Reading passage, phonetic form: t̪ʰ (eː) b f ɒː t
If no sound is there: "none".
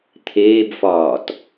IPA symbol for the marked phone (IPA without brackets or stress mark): eː